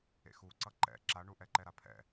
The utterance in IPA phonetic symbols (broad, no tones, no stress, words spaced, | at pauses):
ḛxuǀʌ ǃɛ̰ ǁaɳu ʔɛǃɛɾapʰɛ̰